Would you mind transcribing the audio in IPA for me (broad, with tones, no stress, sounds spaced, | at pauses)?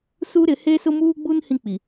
s u˦ ɾ ɪ˨˦ h e˦ s ʊ˦ m uː˦ ɡ͡b u˦ n h ĩ˦ k͡p i˨